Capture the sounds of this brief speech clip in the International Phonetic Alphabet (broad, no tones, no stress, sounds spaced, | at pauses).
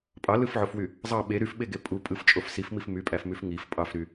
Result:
pʼ ɑ l ɯ f ʕ o f w y | zˤ ɑ ɓ e ɾ y f ɓ e ɡ e pʼ u pʼ ɯ f t͡ʃʼ o f s i f m i f m y pʼ æ f m y f ŋ i f pʼ ɑ f ɾ y